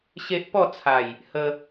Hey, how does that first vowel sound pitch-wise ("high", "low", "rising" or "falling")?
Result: high